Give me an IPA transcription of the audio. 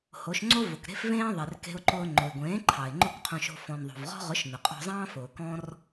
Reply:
h o˨˦ ʃ ŋ͡ǀ o˦ v ʊ˨ k ɾ e̤˦ f v ẽː˦ ðˤ e˨ r k e̤˧ ʊ̯ ǃ ʊː˧ ŋ͡ǃ ʊ˨ ɪ̯ ɡʷ ẽː˨˦ ǃʰ ɑ˨ ɪ̯ ŋ͡ǃ ʊ˦˨ k qʰ õ˧ ʃ o̤˧ f ɔ̃˨ n ðˤ o̤˨ v ʁ ɔ̤˦ ʁ ʊ˨˦ ʃ n ʊ˨ qʼ ɔ̤˧ zˤ ɑ̃ː˦ f ʊː˨ k ɔ̃˦ r

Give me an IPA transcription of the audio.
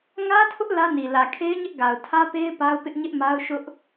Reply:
ŋ ä˦ tʰ ʊ˦ ʔ l ä˦ n i˨ l ä˨ kʰ e˦ ɪ̯ ɲ ɪ˦ ʔ ɡ a˨ ʊ̯ tʰ ä˦ p e˦ ɪ̯ p a˦ ʊ̯ p ɪ˦ ʔ ɲ ɪ˦ ʔ m a˦ ʊ̯ ʃ ʊ˦ ʔ

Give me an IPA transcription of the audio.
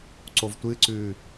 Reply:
ǀ o v tʷ ɨ ǀ ʉː

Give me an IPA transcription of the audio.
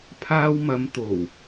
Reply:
pʰ aː˧ w m ɐ˨˧ m t̪ o˨˩ w

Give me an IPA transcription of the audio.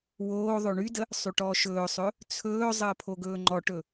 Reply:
w oː ðˤ o ɳ y d ə | sˤ y ʈ ɔː ʃ ɵː sˤ ɵ | t͡sʰ ɵː zˤ əː pʰ o ɡ ɵː ŋ͡ǃ ɔ ʈ ɵ

